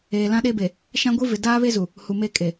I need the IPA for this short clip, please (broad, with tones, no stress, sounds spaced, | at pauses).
eː˨ l ã˦ ɗ eː˦ b e˨ | ʃ ã˦ ɡʷ i˦ v ɪ˨ d aː˦ β e˦ z u˨ | h u˨ m eː˦˨ kʼ e˨